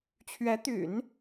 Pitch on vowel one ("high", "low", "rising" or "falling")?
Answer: rising